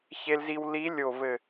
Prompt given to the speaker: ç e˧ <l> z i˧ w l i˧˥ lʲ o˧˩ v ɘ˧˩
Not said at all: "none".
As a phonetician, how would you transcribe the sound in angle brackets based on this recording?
l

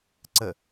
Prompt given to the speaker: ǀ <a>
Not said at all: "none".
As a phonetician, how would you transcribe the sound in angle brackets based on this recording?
ə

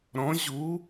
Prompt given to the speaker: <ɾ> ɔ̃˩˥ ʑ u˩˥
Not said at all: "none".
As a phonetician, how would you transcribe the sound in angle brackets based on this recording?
ɾ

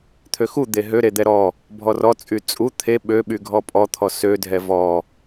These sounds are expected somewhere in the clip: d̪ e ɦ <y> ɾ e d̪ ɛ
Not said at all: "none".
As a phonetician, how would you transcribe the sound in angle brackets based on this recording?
ø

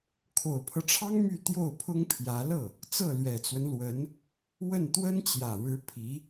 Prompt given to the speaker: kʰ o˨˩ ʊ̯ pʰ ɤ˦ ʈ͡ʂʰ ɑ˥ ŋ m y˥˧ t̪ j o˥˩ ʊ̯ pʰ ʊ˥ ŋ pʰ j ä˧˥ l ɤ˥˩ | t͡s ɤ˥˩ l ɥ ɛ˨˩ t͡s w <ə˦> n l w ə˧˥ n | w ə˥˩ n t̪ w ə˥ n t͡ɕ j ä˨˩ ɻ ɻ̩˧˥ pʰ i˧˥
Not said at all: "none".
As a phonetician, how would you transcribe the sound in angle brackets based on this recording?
ə˦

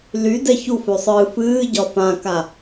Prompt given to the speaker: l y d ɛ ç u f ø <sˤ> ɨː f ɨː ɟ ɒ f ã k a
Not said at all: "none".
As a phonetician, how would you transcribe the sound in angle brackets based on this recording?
sˤ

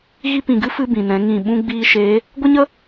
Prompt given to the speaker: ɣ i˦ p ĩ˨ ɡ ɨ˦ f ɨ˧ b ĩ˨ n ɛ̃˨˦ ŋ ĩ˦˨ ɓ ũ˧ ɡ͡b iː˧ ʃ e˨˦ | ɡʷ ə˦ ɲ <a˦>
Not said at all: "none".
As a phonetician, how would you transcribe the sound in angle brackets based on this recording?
ə˦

